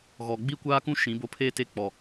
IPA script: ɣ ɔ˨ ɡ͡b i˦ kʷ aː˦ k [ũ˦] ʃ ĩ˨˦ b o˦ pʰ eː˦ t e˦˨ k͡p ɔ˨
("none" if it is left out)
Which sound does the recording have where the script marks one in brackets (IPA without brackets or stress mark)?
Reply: ũ˦